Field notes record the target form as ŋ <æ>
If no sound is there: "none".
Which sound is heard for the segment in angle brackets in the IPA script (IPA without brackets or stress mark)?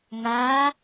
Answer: a